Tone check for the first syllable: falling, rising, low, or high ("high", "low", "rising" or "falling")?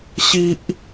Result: high